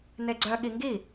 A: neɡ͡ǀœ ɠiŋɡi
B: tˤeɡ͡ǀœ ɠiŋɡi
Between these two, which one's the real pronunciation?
A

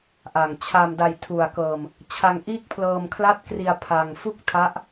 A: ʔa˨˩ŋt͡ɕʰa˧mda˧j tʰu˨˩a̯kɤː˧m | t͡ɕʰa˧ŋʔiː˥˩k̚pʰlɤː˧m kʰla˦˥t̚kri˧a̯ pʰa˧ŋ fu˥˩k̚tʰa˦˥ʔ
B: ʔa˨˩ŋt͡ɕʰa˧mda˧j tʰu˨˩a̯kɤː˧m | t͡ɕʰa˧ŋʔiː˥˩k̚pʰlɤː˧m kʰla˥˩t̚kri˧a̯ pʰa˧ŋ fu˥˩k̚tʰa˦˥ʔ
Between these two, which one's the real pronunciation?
B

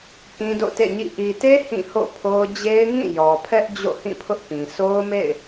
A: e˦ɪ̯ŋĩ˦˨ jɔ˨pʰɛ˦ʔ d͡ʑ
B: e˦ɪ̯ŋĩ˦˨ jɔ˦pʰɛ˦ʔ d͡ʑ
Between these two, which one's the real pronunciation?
A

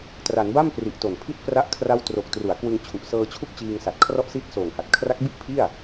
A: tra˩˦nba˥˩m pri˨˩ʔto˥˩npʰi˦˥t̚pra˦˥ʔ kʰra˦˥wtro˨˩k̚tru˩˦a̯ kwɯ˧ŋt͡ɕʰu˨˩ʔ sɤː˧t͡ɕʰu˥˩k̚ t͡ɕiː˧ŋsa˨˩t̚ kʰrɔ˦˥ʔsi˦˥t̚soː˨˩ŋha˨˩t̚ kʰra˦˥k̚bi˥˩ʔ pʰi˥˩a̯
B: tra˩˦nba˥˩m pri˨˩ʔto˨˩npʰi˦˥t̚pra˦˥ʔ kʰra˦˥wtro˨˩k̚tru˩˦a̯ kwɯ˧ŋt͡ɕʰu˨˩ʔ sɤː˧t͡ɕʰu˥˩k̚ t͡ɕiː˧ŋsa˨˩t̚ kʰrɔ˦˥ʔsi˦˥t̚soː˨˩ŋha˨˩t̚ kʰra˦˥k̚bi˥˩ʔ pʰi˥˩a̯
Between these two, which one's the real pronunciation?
B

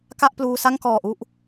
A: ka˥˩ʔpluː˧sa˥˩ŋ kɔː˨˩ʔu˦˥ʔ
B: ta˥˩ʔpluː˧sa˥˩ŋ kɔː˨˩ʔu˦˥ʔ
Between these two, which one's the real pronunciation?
A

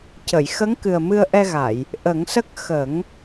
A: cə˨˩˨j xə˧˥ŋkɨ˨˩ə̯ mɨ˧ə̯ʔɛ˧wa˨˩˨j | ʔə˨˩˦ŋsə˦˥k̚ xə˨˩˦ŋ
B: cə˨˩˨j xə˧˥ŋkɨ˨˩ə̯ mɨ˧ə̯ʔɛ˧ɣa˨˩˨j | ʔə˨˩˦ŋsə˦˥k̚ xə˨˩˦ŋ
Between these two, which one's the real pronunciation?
B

